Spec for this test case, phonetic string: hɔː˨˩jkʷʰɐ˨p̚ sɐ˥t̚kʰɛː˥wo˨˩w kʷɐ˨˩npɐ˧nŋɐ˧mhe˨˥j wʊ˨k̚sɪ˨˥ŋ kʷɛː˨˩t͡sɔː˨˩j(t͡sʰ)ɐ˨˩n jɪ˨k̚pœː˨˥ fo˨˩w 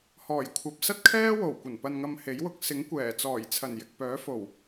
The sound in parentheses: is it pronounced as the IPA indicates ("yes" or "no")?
yes